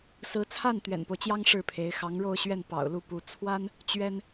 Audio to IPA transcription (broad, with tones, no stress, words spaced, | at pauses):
sɹ̩˧˥t͡sʰa˥˩n t̪ɥɛ̰˨˩npo˦ʊ̯t͡ɕjɑ˥ŋ ʂɻ̩˥˩pʰe˧˥ɪ̯ xɑ˧˥ŋɻo˥˧ʊ̯ɕɥɛ˥˩n pɑ̰˨˩ʊ̯lu˥˩pu˧˥ t͡sʰwa˥n | t͡ɕɥɛ˥n